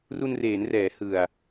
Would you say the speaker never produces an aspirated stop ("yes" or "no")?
yes